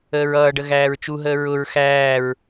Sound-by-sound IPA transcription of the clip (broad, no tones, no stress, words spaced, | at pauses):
əːɹʌːɖə ɣæːɹt͡ʃuɦəː ɹʊɹ xæːɹ